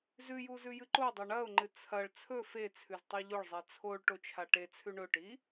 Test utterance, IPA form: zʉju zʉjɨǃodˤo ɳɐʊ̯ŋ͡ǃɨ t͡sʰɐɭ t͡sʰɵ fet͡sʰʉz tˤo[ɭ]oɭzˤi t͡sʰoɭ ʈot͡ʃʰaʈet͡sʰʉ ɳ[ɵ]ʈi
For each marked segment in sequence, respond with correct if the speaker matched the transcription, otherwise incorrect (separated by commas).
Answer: incorrect, correct